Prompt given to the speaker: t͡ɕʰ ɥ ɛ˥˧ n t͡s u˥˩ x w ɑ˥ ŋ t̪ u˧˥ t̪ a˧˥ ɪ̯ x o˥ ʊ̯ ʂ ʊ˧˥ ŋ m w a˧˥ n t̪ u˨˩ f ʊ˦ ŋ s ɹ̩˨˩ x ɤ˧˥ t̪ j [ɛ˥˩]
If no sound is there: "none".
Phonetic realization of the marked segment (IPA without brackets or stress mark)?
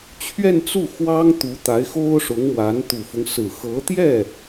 ɛ˥˩